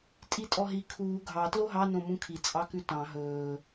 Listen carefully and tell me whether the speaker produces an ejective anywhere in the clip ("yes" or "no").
yes